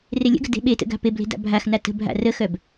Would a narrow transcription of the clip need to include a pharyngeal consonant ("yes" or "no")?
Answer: no